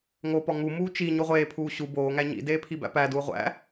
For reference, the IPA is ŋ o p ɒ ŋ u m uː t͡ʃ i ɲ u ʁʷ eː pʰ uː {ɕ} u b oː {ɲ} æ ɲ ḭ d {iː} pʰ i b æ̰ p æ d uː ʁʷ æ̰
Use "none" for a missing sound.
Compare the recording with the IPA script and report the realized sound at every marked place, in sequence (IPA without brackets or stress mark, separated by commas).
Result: ɕ, ŋ, eː